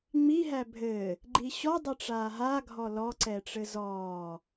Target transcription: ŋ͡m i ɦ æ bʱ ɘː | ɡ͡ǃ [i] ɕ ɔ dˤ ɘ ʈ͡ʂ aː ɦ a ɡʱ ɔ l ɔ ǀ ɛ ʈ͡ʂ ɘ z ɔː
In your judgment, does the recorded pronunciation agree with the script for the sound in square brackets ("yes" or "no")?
yes